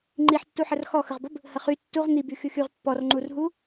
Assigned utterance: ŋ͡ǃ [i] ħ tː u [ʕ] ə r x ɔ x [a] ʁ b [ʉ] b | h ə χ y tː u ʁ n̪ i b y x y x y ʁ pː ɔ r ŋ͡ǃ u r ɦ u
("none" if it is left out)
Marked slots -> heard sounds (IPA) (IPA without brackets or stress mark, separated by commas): i, ħ, ə, ə